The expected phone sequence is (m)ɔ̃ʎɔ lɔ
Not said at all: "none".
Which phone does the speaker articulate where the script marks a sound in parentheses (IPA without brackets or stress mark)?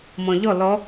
m